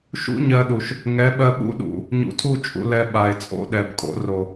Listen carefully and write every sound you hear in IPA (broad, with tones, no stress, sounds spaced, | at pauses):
ʃ ṵ˦ ɲ ɜ˧ ɗ u˨ ʃ | ŋ ɛ˨˦ ɓ ɜ˧ ɓ ṵ˦ ɗ ṵ˨ | ɲ ṵ˨ tʰ u˦˨ t͡ʃʼ ṵ˧ l ɛ˧ ɓ a˨ e̯ t͡sʼ o̰˦ ɗ ɛ˨ b kʼ o̰˨˦ r o˨